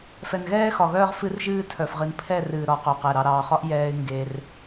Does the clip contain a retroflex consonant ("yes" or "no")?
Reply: no